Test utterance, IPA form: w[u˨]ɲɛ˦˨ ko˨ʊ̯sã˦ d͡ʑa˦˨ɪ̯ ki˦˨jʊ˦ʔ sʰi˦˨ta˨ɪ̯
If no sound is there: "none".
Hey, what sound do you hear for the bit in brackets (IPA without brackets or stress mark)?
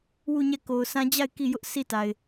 u˦˨